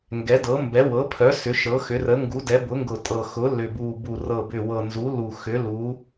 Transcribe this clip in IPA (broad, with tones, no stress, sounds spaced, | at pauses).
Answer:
ŋ ɡ ɛ˩˥ d ɤ˩˥ m b ɛ˩˥ w ɤ˩˥ pʰ œ˩˥ s ʏ˩˥ ʃ ɤ˩˥ x ʏ˩˥ r ə˩˥ ŋ ɡ u˩˥ d ɛ˩˥ b ʊ˩˥ ŋ ɡ ʊ˨˩ tʼ ɤ˨˩ x ʊ˩˥ l ʏ˨˩ b u˨˩ b u˨˩ r ɤ˨˩ b ʏ˨˩ w ɤ˨˩ n z u˩˥ l u˨˩ x ʏ˩˥ l u˩˥